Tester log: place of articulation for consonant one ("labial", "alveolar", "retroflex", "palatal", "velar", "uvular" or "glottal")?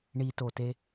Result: retroflex